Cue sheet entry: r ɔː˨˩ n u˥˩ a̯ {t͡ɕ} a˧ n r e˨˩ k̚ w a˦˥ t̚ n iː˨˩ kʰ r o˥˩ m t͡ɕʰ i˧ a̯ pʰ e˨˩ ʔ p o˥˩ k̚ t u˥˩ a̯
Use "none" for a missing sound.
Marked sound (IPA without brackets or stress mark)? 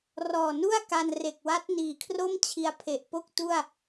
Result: k